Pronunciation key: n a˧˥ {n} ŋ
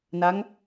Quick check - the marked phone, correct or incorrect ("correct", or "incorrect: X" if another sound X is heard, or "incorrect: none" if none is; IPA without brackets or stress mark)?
incorrect: none